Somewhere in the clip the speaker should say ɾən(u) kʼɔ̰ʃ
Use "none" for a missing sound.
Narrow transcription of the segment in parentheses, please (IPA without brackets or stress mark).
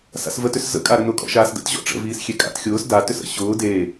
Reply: ʊ